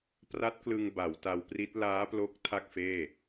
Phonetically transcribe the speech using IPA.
p r a˦˥ t̚ k l ɯ˧ ŋ b a˩˦ w t a˧ w p r i˦˥ t̚ l aː˦˥ p l o˦˥ k̚ tʰ a˥˩ k̚ f eː˥˩

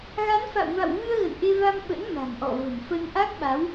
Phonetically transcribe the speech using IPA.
ɣ a˨˦ n f a̰˧˨ w v a̰˧˨ w v ɨ˧ ə̯ ɣ ə̰˧˨ n ʔ e˧ v a˧ m ɓ ə̰˧˥ n m a̤˨˩ ŋ ʔ ɔ̰˧˨ v ə̤˨˩ m f ə˧ n ʔ a˦˥ k̚ ɓ a˨˦ w

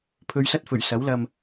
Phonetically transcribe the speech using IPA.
pʰ ɵ˨˧ ɥ s ɐ˥ t̚ f ɵ˨˩ ɥ s ɐ˨˥ w l ɐ˧ m

